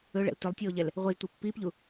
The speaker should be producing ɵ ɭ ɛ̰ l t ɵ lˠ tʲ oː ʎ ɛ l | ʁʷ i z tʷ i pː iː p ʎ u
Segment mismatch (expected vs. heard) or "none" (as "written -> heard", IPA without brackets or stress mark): none